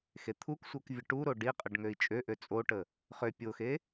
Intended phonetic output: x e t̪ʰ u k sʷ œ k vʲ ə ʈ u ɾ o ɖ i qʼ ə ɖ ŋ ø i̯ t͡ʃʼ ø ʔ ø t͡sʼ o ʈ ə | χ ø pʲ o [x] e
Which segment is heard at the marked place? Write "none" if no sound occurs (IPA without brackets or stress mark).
x